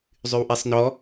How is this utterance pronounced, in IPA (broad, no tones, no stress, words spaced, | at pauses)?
zˤywʔisˤnɔ